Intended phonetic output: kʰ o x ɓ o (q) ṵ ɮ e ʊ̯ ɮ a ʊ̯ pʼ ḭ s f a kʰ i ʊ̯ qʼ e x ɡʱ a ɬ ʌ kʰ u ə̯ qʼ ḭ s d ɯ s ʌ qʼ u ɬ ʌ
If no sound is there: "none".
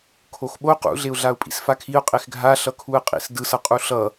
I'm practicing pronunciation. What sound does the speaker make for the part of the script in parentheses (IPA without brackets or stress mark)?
q